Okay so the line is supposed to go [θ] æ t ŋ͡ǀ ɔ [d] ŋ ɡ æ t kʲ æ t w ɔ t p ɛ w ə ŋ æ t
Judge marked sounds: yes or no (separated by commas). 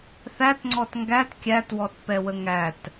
yes, no